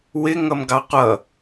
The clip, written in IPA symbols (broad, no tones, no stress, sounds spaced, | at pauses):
w ɪ ŋ ʌ m ɡ ɑ qʷ ʌ